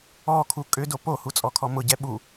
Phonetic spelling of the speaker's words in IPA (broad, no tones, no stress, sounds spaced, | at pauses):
ɔ kʰ u kʼ ʏ d o p o h u t͡sʼ ɔ kʰ ɔ m ʊ ɟ ɛ ɓ u